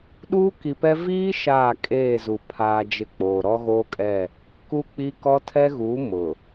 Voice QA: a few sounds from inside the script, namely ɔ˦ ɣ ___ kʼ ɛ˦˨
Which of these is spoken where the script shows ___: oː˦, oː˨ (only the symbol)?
oː˦